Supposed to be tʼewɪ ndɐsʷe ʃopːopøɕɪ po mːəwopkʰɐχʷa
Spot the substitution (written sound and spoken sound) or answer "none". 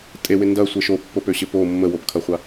none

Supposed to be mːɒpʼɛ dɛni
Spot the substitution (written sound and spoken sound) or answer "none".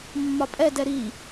n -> ɾ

